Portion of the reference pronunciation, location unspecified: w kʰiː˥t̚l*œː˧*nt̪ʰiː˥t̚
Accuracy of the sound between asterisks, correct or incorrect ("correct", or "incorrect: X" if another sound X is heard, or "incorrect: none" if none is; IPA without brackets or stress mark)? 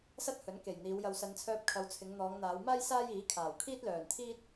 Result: incorrect: œː˨˩